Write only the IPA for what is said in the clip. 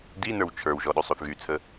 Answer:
d i n ə˞ w t͡ʃʰ ə˞ w ʒ ɔ ɗ y sˤ o θ ɣ y t͡sʰ ə

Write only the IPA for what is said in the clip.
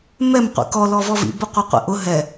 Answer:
m ɛ m qʷ ḭ k ɔ l ɔ v ɔ v ḭ b ʊ qʷ ɐ qʷ ḭ ʔ ʊ ɦ ɛ

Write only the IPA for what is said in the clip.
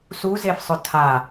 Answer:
s u z e f sˤ ʊ tʰ a

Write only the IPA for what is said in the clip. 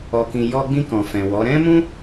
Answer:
ɔ˨ k ĩ˨ j ɔ˧ ɡ͡b ĩ˧ k ɔ̃˨ f ɛ̃˨ w ɔ˨˦ ɾ ɛ̃˦ m ũ˦

